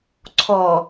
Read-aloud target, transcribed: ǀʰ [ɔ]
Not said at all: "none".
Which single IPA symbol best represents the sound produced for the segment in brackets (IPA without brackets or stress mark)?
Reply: ɔ